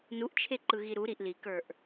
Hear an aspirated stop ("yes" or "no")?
yes